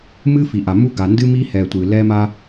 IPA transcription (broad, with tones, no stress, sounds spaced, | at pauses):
m ɨ˦ f i˨ ʔ a˨ m u˦ ɡ a˨ n d ɨ˦ m i˦ h ɛ˨ tʷ ɨ˨ l ɛ˦ m a˦